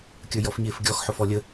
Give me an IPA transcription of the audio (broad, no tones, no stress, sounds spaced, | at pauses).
kʲ ə˞ j ɔ f ɲ ɪː f ɡʲ ɔ x ħ ʊ f ɔ lʲ ə